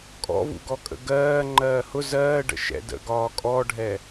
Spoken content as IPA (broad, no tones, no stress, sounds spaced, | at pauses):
kʼ ɔ̰ v ṵ ɡ ɔ kʼ ə̰ ɡ ɜː ŋ͡ǃ ɜː h ʊ z ɜː ɖ ə̰ ʃ ɛ̰ d ə̰ ɡ ɒː kʼ ɔ ɖʱ ɛ